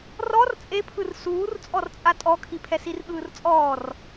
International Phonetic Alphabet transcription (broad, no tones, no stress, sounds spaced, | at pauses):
r ɔ r t͡sʼ e pʰ ɯ r s uː r t͡sʼ ɔ r t͡sʼ a tʼ ɔ kʰ i pʰ ɛ s i r ɠ ɯː r t͡sʼ ɔː r